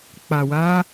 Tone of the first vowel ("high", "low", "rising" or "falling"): low